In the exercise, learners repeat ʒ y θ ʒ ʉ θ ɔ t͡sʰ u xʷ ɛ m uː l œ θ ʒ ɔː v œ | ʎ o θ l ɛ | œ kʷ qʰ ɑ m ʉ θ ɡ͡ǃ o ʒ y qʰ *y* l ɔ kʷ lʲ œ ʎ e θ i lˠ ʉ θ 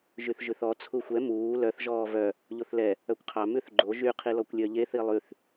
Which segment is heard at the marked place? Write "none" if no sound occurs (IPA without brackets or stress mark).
i